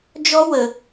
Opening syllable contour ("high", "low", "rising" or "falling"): high